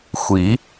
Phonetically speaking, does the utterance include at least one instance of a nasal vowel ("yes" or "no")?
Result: no